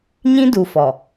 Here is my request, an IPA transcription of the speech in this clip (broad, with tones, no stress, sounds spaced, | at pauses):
ɲ ĩ˦ d u˨ f ɔ˨